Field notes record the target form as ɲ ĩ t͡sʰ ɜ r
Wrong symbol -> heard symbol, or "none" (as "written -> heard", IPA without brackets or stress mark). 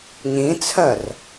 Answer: none